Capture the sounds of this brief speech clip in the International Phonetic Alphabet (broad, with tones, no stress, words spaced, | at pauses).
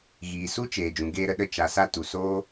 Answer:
ɣiː˨su˦ t͡ʃeː˨d͡ʒũ˨ ɡeː˧ɾə˧ɗə˧ t͡ʃa˨sa˧ tu˨soː˦